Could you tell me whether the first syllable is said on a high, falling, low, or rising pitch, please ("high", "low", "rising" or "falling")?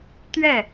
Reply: falling